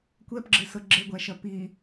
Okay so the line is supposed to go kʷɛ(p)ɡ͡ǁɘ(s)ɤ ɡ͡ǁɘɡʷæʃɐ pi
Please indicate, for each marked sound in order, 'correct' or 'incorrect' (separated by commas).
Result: correct, correct